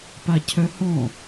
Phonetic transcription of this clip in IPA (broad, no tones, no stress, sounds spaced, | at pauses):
p a cʰ œ h ɔ̃